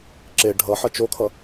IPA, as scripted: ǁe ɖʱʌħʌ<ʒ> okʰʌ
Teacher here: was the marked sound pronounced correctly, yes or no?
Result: no